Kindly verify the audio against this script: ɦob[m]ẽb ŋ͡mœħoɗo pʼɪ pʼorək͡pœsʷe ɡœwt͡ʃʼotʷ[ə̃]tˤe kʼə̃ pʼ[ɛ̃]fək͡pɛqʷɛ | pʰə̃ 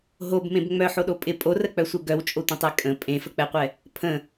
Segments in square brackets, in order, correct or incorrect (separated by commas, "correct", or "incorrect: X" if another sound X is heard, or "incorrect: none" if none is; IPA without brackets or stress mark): correct, correct, incorrect: ẽ